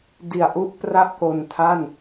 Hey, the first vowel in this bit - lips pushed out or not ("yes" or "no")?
no